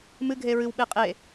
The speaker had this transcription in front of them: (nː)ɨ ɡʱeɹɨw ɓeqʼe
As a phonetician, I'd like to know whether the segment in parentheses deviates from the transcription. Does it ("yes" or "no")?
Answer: yes